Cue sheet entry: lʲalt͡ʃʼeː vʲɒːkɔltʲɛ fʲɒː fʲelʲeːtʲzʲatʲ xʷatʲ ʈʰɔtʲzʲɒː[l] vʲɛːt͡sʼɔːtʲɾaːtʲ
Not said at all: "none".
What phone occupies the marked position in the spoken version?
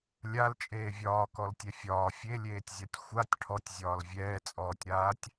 l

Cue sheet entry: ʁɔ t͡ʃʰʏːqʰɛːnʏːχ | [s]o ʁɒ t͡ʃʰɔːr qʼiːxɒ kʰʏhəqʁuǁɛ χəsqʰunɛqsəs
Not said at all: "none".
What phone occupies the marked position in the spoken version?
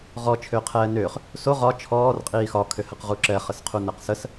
s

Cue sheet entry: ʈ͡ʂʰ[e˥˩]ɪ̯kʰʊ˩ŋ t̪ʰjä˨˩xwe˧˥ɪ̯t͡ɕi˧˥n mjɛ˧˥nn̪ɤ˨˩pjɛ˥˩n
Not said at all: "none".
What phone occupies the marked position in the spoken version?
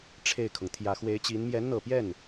e˥˩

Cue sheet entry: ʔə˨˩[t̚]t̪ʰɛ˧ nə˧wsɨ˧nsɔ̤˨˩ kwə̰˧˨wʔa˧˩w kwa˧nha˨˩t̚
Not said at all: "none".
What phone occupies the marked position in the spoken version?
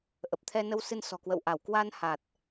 p̚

